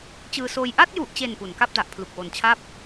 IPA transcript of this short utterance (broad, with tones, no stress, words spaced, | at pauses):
t͡ɕɯː˧soː˧j ʔa˥˩t̚ju˨˩ʔt͡ɕe˨˩n pu˩˦nka˥˩p̚da˨˩ʔ pʰlu˨˩k̚wo˨˩nt͡ɕʰa˥˩p̚